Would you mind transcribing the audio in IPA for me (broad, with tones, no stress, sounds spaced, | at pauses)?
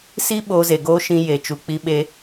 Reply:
s i˦ ɓ oː˧ z e˨ ɡ oː˦ ʃ ĩ˧ j e˨ t͡ʃ u˨ k͡p i˧ ɓ e˧